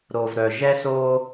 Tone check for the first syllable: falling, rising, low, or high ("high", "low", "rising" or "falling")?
low